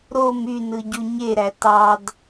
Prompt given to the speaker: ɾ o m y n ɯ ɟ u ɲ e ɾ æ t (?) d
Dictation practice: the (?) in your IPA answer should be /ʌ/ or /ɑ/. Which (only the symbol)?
ɑ